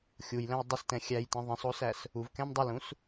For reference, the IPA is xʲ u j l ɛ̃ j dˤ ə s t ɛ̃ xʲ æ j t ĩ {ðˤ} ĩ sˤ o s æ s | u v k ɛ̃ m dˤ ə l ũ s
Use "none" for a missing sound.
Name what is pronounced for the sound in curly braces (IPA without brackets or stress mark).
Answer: ðˤ